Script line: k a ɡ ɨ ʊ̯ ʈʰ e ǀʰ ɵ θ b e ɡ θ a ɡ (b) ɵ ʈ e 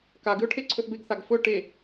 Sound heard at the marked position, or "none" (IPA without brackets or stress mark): f